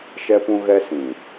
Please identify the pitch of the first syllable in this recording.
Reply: high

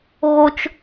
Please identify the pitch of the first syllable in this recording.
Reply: high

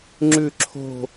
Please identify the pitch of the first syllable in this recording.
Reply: falling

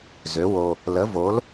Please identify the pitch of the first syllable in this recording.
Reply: rising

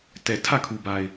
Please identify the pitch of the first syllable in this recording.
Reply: low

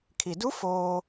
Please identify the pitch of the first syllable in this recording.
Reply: low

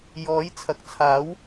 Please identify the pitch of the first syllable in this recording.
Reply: rising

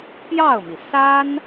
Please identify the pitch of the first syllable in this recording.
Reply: falling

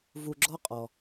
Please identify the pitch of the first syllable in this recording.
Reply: low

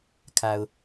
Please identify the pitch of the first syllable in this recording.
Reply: low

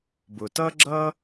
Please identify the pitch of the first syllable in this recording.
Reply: low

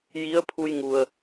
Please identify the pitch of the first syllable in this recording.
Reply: rising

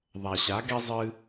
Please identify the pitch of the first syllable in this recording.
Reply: low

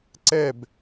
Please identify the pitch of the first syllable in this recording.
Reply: falling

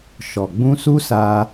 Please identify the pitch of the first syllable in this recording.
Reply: low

